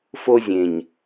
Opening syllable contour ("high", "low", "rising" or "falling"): high